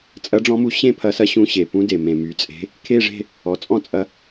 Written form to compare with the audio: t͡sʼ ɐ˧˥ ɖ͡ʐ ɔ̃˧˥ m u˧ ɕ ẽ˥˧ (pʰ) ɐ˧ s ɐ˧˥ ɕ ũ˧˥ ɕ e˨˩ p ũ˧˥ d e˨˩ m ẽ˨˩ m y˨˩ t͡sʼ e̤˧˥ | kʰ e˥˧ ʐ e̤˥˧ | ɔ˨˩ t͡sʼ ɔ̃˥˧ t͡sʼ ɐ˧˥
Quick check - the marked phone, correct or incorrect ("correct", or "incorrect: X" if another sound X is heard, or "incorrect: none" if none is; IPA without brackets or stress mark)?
correct